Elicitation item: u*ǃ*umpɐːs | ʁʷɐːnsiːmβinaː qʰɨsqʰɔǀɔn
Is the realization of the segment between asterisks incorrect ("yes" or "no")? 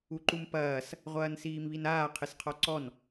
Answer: no